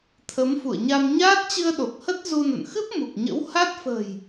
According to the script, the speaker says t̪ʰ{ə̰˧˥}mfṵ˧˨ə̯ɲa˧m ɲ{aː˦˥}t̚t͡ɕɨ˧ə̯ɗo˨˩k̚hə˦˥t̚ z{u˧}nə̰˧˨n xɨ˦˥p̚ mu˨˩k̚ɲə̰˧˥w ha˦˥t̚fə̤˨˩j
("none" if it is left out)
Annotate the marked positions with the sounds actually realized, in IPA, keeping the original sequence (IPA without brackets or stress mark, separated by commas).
ə˨˦, aː˦˥, u˧